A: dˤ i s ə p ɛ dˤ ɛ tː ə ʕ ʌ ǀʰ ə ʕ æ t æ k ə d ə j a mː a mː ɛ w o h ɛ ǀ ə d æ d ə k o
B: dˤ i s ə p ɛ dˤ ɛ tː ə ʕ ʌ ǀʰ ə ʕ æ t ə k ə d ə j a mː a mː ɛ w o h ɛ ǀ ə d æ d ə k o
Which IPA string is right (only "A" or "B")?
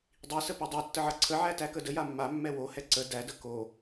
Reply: A